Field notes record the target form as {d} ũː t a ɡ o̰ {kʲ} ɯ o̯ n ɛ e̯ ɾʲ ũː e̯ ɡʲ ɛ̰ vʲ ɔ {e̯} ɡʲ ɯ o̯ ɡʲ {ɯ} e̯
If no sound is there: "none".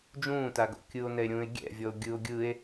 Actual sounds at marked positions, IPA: d͡ʒ, kʲ, o̯, ɯ

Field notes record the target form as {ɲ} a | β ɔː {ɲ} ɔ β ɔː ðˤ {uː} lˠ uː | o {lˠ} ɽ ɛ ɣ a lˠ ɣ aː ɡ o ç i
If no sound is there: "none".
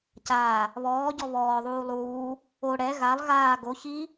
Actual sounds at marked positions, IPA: c, ɟ, uː, none

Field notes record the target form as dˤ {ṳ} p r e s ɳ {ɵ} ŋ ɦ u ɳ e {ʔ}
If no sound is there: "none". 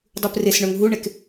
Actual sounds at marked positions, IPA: u, ɵ, k

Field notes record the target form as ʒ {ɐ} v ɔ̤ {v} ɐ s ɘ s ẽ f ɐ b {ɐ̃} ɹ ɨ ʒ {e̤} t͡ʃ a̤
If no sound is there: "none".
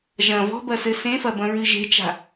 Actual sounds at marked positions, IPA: ɐ̃, b, ɐ̃, e̤

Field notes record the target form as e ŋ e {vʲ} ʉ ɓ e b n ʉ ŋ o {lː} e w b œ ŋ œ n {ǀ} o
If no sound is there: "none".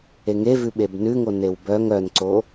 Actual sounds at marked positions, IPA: v, n, ǀ

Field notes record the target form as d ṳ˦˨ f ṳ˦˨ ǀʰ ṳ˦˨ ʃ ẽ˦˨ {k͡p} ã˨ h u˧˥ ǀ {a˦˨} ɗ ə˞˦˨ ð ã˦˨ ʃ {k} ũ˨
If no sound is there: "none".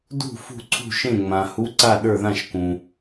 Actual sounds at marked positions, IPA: ŋ͡m, a˦˨, k

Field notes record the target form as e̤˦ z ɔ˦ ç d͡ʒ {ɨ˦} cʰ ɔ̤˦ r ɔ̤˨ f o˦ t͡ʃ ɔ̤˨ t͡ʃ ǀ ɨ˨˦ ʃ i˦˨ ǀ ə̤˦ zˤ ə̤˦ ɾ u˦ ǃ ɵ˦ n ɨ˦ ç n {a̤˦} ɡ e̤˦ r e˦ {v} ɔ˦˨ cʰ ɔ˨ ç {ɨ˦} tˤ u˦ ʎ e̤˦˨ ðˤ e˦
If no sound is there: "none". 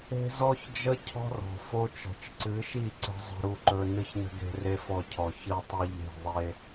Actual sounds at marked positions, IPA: ə˦, ə̤˦, f, ɨ˦

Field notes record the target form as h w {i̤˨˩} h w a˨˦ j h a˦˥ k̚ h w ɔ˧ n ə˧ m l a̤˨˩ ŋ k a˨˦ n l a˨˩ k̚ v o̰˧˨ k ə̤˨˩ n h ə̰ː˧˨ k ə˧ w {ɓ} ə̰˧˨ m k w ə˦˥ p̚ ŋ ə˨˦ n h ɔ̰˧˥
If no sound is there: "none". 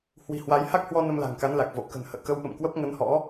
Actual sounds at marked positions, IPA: i̤˨˩, ɓ

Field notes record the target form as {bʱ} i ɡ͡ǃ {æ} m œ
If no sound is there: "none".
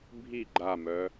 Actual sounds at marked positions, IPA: bʱ, a

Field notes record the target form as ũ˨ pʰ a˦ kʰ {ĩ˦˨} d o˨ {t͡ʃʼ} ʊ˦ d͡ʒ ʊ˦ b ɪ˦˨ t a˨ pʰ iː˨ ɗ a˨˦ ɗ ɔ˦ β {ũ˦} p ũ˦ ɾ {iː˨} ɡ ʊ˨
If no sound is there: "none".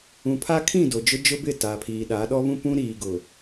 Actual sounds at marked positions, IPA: ĩ˦˨, d͡ʒ, ũ˦, iː˨

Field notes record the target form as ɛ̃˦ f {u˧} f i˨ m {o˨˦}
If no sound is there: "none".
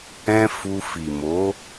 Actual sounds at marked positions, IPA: u˧, o˨˦

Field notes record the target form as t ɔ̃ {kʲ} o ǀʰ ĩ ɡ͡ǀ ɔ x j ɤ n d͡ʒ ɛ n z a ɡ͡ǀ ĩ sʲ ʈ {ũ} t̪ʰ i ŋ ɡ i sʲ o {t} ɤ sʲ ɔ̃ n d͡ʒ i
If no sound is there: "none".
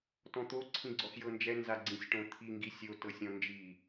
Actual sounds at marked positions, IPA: t̪, õ, t

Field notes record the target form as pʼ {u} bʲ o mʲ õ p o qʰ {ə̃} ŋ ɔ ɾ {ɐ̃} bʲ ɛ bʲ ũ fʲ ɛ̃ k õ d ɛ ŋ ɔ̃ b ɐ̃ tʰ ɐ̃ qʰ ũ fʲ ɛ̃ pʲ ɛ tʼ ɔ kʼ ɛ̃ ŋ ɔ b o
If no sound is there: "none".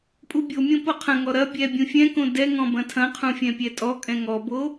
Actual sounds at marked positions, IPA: u, ɐ̃, ɐ

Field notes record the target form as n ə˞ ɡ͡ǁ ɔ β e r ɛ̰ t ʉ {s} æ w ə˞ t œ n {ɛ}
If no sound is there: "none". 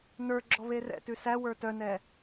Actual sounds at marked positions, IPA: s, ɛ

